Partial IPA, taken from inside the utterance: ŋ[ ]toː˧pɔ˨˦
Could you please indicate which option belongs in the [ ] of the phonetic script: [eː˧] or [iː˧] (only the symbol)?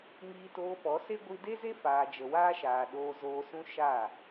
iː˧